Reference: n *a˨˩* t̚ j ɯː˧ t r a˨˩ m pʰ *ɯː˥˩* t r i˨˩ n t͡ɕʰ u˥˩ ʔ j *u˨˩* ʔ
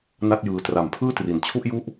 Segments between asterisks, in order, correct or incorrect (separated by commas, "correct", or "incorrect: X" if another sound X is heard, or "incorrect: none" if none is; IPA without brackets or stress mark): incorrect: a˥˩, correct, incorrect: u˦˥